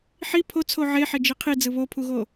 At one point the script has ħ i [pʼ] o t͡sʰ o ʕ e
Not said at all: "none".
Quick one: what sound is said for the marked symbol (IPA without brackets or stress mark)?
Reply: pʰ